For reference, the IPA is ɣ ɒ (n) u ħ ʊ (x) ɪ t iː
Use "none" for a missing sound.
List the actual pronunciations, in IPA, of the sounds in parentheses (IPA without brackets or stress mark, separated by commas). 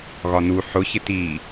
n, ç